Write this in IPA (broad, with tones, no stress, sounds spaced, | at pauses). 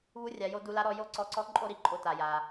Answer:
β u˧˥ rʲ a˩˧ j o˧ d u˧ l a˧˥ ɾ ɔ˧ j o˥ ǀ ɔ˧ ǀ ɔ˧˥ ǃʼ o˥ ɾ i˧ ǃʼ o˧ t a˩ j a˩